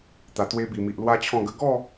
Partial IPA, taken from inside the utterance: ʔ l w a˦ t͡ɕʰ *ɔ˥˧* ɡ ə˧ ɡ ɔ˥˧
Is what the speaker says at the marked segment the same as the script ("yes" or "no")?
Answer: no